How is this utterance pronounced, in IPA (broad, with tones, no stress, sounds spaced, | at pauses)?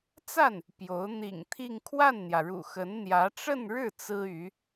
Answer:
t͡s a˥˩ n | p j o˧˥ ʊ̯ n̪ ḭ˨˩ ŋ t̪ʰ i˥˧ ŋ kʰ w a˥˩ n n̪ j ä˩ ɻ ṵ˨˩ x ə˧˥ n n̪ j ä˧˥ ʈ͡ʂ ə˥˧ n ɻ ɻ̩˥˩ t͡s ɹ̩˥ y˧˥